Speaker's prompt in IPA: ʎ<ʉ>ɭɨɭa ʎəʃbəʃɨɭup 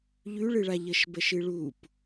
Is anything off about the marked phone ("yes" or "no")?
no